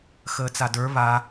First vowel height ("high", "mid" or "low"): mid